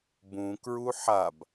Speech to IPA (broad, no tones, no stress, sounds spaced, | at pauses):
b ũ k ɹ u ħ a b